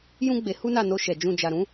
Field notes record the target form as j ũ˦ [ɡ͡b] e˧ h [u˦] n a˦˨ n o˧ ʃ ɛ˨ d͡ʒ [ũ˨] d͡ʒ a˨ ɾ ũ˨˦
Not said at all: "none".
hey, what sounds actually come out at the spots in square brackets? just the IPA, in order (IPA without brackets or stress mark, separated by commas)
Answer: ɡ͡b, u˦, ũ˧